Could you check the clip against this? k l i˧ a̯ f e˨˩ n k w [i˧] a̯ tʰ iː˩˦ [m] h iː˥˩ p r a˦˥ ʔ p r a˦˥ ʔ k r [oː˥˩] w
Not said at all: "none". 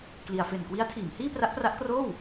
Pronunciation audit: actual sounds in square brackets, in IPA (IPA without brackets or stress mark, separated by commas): i˦˥, m, oː˥˩